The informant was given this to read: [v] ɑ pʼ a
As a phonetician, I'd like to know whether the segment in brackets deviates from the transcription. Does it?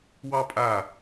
yes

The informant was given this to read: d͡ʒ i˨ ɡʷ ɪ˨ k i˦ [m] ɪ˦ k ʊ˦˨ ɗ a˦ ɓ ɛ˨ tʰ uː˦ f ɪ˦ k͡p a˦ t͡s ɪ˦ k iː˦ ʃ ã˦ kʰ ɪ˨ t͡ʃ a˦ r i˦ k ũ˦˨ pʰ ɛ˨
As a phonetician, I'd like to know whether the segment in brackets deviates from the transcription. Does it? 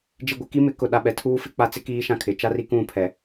no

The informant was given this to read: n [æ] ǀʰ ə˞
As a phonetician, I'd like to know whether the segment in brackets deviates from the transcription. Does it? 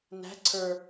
yes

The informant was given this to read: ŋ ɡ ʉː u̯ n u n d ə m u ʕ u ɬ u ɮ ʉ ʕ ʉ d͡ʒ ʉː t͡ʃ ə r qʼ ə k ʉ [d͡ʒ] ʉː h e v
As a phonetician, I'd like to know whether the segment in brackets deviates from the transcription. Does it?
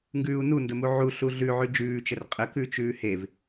yes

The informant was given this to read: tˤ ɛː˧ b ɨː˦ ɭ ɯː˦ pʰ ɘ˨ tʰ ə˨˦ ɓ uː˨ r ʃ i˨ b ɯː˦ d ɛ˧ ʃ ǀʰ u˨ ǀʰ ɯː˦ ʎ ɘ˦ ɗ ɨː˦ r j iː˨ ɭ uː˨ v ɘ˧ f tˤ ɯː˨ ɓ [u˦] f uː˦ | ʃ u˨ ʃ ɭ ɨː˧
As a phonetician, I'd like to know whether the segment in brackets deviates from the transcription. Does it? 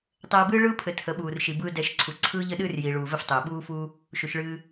yes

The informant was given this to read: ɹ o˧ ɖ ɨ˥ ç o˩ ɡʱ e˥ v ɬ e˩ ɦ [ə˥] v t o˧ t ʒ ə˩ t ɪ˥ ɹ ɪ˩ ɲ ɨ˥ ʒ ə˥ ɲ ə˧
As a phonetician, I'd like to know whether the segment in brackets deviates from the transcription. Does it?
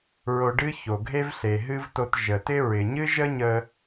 yes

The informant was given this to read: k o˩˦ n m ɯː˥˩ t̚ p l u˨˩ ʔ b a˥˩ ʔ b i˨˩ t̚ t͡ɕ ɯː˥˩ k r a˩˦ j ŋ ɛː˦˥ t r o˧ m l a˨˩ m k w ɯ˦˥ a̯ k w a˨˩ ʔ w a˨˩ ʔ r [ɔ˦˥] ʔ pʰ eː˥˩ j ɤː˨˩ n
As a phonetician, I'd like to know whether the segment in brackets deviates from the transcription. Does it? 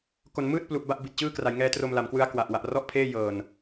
yes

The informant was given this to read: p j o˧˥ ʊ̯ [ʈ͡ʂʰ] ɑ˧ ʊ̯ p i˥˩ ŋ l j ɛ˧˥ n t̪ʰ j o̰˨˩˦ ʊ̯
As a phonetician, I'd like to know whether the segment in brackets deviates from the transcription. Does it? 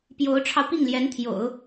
no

